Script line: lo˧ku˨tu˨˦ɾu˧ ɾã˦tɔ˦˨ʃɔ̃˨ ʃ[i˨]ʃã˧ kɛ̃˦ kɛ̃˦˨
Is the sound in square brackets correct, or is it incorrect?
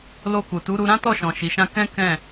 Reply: correct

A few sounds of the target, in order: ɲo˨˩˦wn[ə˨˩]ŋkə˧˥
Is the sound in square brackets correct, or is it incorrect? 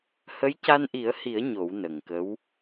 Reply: correct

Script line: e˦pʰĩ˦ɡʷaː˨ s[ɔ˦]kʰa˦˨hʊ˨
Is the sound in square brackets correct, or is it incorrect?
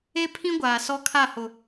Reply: correct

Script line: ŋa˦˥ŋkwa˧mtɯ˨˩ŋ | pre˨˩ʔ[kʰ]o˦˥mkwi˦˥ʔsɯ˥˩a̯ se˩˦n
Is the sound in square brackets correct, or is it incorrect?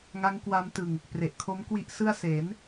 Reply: correct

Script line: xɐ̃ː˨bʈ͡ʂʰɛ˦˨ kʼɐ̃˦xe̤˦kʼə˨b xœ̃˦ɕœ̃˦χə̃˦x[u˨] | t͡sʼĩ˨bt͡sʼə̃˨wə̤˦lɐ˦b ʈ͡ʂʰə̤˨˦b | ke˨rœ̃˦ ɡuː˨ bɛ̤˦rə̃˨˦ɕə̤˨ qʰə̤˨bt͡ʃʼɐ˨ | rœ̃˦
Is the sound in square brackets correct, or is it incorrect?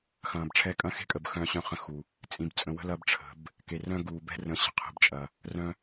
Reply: correct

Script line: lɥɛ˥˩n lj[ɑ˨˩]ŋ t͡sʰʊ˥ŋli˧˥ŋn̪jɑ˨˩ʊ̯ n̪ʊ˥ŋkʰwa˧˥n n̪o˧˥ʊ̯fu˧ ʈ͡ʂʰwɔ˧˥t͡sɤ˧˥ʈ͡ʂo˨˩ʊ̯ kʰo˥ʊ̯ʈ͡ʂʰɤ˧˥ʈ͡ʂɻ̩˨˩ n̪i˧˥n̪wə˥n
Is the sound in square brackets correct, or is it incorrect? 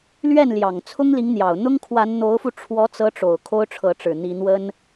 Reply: correct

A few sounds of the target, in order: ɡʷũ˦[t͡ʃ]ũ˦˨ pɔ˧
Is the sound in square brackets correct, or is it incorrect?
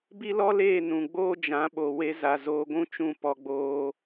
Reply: correct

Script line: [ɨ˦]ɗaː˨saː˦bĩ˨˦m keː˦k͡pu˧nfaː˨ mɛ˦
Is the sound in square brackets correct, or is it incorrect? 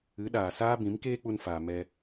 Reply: incorrect: ɨ˨˦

